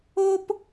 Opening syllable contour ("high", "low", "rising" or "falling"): high